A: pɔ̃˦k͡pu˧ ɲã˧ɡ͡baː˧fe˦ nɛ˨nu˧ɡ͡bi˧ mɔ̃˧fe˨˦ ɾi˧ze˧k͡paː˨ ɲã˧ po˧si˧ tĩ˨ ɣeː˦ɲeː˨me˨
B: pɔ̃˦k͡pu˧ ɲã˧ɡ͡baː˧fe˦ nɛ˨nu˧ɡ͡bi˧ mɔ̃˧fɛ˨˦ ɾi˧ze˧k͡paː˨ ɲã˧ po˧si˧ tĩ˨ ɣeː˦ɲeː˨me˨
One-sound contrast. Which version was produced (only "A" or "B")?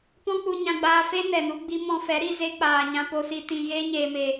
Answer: B